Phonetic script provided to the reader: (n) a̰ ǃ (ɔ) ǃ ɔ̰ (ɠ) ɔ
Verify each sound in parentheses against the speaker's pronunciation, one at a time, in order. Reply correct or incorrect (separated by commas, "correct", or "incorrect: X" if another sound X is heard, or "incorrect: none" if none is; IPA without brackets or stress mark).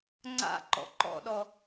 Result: incorrect: ŋ͡ǀ, incorrect: ɔ̰, incorrect: ɗ